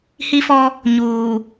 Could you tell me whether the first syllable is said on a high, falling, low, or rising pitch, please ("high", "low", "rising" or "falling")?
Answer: high